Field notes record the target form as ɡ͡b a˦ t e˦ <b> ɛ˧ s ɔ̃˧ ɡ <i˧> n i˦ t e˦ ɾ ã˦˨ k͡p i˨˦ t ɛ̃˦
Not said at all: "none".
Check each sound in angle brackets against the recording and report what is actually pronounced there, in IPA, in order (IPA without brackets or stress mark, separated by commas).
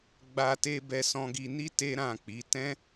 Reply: b, i˧